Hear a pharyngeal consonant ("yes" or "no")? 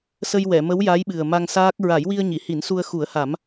no